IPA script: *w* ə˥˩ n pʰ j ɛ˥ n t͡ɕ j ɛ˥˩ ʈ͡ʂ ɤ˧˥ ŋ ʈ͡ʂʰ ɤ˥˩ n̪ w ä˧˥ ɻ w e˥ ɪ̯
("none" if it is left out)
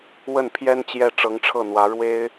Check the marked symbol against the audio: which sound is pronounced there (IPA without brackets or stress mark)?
w